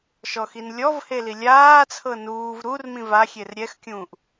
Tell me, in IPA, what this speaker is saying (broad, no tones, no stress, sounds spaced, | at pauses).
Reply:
ʃ ɔ x i n lʲ ɔ v h e l i lʲ aː t͡sʰ ɤ n uː v ɾ u r m ĩ v a xʲ e r ɾʲ ɛ x kʲ ũː ʔ